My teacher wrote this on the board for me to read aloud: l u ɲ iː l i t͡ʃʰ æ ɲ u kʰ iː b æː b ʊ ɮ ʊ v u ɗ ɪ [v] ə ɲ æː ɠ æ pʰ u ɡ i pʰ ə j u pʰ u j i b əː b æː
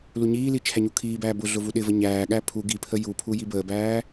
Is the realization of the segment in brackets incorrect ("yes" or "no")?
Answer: no